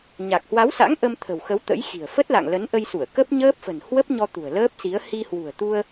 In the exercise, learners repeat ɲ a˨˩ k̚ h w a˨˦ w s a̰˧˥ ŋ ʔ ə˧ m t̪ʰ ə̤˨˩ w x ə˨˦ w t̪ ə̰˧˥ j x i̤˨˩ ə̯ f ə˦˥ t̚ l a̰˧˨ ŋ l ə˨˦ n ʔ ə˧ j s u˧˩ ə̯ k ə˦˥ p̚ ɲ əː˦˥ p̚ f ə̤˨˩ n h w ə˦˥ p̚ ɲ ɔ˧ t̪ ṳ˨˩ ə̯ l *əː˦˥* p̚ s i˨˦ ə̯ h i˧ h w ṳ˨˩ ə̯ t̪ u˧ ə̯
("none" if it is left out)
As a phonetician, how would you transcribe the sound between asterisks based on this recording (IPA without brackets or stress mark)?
əː˦˥